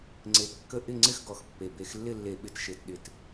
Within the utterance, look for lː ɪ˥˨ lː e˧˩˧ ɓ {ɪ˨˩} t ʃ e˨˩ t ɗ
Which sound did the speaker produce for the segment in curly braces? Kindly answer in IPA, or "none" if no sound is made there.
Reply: ɪ˨˩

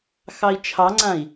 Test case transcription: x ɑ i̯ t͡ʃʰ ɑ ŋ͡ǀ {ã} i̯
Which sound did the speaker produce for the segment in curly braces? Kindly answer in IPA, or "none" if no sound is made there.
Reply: ã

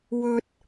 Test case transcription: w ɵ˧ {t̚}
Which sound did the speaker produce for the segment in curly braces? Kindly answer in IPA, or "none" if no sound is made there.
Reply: t̚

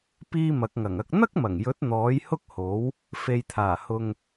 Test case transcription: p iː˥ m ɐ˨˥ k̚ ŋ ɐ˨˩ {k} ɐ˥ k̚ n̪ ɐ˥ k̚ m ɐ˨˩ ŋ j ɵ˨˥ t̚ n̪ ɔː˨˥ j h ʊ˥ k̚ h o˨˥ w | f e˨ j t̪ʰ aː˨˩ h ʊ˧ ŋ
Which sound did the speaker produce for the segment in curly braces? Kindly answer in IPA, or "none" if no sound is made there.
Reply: ŋ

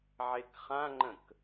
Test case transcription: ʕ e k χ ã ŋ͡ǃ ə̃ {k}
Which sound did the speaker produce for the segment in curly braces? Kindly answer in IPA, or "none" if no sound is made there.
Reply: k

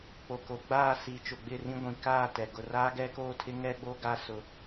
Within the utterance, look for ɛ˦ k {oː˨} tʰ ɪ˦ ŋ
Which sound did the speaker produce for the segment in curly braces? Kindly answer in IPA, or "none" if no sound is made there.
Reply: oː˦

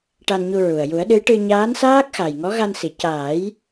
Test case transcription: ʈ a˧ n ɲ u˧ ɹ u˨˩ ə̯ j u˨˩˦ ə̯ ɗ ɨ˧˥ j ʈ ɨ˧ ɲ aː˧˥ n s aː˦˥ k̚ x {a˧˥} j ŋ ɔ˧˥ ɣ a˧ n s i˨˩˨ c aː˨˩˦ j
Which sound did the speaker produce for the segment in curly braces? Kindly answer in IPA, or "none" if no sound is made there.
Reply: a˨˩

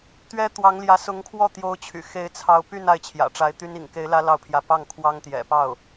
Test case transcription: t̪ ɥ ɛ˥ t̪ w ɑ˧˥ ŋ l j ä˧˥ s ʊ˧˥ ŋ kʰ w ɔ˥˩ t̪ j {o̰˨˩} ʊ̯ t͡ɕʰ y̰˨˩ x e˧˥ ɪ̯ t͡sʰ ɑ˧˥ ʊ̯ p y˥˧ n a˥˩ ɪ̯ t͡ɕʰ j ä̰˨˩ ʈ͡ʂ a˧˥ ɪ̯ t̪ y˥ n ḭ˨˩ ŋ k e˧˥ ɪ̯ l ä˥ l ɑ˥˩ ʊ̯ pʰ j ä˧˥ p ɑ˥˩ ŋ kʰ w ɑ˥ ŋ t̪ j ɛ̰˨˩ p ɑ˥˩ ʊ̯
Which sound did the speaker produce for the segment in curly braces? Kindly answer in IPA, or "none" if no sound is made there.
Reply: o˧˥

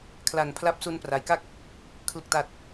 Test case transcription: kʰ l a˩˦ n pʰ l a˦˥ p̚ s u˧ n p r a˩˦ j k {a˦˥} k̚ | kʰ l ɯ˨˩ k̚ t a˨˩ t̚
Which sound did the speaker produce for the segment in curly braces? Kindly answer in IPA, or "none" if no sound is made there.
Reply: a˥˩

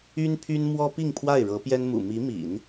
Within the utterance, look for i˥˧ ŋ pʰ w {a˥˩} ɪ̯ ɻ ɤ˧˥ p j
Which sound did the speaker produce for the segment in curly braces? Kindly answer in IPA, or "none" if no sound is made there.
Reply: a˥˩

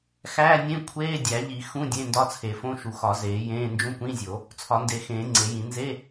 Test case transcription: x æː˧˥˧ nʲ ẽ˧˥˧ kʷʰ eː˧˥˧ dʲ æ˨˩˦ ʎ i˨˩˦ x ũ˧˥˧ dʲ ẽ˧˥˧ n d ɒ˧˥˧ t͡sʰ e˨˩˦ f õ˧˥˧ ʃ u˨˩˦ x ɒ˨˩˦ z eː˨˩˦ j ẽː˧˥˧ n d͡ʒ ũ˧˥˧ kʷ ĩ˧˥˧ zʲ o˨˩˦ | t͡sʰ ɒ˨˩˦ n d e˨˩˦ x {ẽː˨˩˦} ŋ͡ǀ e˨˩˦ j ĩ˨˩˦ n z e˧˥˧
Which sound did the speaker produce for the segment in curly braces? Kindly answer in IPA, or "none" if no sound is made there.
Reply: ẽː˨˩˦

